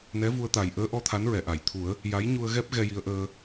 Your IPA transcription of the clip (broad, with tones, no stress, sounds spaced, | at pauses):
n ɛ˧˥ v u˧ ə̯ t̪ a˨˩ j ʔ əː˧˥ ʔ ɔ˧˥ t̪ʰ a˧˥ n ɹ ɛ˨˩˨ ʔ a˨˩˨ j t̪ʰ u˨˩˦ ə̯ | j a˧˥ j ɲ u˧ ə̯ ɣ ɛ˦˥ p̚ ɣ ɛ˧ j i˧ ə̯ ʔ əː˧